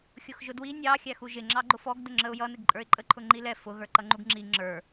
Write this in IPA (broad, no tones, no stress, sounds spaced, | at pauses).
xʲ ʊ x ʒ ʊ d w i nʲ ɑ xʲ æ x u ʒ ɪ ŋ͡ǁ ɑ ɡ͡ǃ ʊ f ɔ ɡ d ʊ ŋ͡ǁ ə ʊ̯ j ʌ n ɪ ɡ ǃʼ ə˞ ɪ̯ ǃʼ ə ǃʰ ʊ ŋ͡ǃ i l ɛ f ʊ ɣ ə˞ ǃ ʌ ŋ͡ǃ u ɡ ŋ͡ǁ i ŋ͡ǁ ə˞